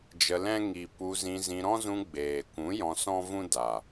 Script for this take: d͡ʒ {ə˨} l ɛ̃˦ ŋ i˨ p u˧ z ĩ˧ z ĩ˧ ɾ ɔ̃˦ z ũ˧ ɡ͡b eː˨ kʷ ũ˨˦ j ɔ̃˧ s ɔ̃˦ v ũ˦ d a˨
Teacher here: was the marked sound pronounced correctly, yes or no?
no